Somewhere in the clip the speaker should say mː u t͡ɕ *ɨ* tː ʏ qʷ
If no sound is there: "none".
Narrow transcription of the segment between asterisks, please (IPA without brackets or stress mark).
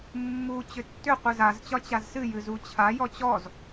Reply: ʏ